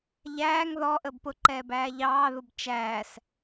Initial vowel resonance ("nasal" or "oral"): oral